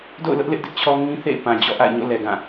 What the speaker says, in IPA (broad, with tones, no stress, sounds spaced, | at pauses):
d o̰˦˨ ʊ̯ l ʊ˦ ʔ l ɪ˦ ʔ d ɪ˦ ʔ t͡ɕʰ ɔ˦ ŋ ĩ˦ θ ḛ˦˨ ɪ̯ p ã˨ d͡ʑ ɔ̰˦˨ ʔ a̰˦˨ ɪ̯ ɲ o̰˦˨ l ɛ˨ ɡ ã˦˨